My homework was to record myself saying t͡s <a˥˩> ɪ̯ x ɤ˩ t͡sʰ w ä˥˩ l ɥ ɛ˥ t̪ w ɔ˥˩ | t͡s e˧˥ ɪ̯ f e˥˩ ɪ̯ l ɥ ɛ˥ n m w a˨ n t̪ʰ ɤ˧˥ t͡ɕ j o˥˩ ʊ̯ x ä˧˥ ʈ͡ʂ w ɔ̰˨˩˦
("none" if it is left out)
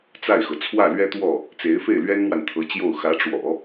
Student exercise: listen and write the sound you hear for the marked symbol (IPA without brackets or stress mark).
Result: a˥˩